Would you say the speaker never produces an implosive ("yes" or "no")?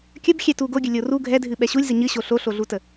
no